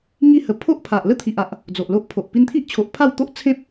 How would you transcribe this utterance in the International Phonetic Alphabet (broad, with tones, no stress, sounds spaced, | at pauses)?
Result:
ŋ i˥˧ h ə˧ pʰ o˦ ʔ pʰ a˨ ʔ l ə˦ t̪ʰ i˨ ʔ a˨ ʔ | d͡z o˨ ʔ l o˦ ʔ pʰ o˨ ʔ p i˧ n t̪ʰ i˦ ʔ t͡ɕʰ o˨ ʔ pʰ a˥˧ w t̪ o˦ ʔ t͡sʰ ẽ˦ p̚